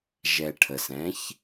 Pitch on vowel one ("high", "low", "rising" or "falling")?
low